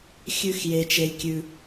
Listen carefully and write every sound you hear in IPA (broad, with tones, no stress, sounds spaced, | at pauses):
xʲ ʉ˥ x j e˥ t͡ʃ e˥ lʲ kʲ ʉ˥